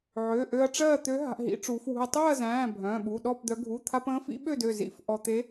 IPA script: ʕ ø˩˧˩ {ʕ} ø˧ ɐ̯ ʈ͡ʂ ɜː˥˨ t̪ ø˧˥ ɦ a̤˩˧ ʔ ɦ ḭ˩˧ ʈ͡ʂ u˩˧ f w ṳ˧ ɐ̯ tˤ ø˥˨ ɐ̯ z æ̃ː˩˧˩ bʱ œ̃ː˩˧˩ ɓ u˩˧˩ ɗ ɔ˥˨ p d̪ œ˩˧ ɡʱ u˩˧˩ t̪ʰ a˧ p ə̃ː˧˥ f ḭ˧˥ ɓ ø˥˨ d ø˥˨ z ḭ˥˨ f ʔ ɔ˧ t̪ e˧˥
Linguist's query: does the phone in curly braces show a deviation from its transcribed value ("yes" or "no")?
yes